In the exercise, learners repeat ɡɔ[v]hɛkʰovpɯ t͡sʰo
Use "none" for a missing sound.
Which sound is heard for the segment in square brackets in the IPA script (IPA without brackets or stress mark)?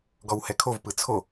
w